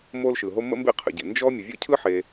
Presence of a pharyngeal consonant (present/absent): present